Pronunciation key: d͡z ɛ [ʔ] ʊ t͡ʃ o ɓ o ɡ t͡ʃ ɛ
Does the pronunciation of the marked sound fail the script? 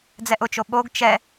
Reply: no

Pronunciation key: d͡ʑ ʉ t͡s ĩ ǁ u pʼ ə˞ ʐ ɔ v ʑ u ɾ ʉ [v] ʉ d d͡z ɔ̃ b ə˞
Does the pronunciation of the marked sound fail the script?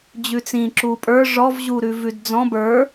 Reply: no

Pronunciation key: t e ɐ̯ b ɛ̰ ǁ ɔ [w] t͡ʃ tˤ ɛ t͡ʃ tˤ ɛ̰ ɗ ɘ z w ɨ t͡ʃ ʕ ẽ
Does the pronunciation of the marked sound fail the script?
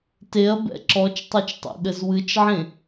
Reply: yes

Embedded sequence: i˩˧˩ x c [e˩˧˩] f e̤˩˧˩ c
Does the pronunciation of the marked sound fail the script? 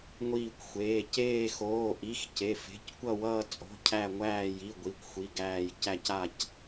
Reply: no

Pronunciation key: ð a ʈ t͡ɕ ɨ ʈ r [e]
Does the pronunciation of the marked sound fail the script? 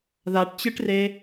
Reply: no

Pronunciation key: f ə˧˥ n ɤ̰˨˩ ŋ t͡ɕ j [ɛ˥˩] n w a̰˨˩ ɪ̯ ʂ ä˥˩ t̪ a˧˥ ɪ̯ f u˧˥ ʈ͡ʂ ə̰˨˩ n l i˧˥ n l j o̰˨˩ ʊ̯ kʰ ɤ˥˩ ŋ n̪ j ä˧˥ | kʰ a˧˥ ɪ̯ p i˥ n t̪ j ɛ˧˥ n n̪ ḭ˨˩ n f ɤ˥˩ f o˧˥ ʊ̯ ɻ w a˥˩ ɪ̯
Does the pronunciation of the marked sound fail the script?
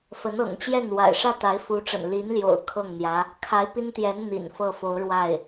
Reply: no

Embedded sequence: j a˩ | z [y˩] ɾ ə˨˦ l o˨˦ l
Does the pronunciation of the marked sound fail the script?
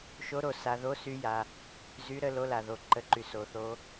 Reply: yes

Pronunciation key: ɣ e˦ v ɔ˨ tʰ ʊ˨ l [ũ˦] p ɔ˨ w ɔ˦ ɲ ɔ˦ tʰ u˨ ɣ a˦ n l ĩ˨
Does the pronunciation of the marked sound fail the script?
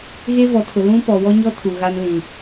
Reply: no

